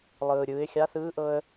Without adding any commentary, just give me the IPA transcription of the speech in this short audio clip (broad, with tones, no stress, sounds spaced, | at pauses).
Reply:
lˠ ɯː˩ ɾʲ ɯː˩˧ ɪ̯ xʲ a˧˥ θ ɯː˧˥ ʔ ɤ˧ ə̯